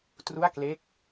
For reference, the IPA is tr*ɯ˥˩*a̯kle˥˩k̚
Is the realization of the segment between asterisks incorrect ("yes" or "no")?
yes